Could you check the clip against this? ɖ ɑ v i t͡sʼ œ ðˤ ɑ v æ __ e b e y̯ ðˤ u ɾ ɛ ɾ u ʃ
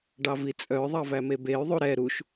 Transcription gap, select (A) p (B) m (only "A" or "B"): B